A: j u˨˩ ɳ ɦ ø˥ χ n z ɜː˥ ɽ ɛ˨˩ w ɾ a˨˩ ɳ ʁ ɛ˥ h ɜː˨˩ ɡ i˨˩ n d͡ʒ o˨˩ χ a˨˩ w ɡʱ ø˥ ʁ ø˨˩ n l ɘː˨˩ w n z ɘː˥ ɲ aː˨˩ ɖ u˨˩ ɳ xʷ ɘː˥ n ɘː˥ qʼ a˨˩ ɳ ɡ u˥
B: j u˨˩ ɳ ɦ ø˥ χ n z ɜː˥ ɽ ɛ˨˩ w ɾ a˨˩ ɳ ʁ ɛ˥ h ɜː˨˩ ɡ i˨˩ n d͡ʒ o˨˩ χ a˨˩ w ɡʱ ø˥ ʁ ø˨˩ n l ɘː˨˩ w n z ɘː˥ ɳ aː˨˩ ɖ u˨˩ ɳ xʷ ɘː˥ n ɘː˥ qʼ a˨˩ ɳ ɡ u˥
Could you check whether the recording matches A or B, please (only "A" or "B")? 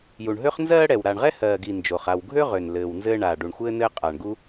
B